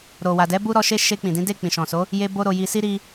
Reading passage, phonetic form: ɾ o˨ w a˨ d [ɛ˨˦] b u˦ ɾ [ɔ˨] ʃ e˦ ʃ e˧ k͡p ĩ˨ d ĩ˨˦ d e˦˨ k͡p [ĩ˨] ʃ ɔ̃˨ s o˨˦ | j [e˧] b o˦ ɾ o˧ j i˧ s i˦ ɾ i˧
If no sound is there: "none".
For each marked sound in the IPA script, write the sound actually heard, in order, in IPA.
ɛ˨˦, ɔ˧, ĩ˨, e˦

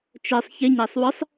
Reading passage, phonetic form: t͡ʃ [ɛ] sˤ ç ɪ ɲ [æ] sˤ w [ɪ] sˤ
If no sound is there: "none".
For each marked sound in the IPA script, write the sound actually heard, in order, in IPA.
ɛ, æ, ə

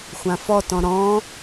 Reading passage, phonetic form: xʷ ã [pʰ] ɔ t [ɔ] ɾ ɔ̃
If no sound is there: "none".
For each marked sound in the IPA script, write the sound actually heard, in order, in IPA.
f, ɔ̃

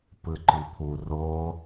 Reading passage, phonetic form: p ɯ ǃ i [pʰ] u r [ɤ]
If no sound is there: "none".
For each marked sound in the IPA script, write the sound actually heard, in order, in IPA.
pʰ, o

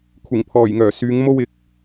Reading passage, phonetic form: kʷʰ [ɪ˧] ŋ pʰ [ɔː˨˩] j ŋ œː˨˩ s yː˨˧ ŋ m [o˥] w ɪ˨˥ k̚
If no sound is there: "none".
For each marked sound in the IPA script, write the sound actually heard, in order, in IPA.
ɪ˨˩, ɔː˨˩, o˧

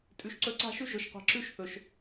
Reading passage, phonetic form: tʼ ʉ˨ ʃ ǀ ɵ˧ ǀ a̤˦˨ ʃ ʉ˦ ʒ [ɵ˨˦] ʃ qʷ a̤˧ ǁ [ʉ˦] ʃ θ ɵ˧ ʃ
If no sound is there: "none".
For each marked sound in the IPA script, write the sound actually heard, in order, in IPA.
ɵ˧, ʉ˦

